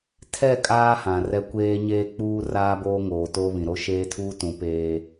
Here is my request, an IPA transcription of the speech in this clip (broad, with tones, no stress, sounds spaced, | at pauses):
tʰ ɛ˦˨ kʼ aː˦ h ã˨ r ɛ˦ kʷ eː˦ ɲ eː˦ k͡p uː˦ r aː˦ b oː˦ ŋ oː˨ t o˦ β ĩ˨ ɾ o˦ ʃ eː˦ tʰ uː˦ t ũ˨˦ p eː˦